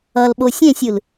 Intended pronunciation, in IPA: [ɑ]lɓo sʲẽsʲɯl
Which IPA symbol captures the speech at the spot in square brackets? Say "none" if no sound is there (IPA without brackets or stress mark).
ʌ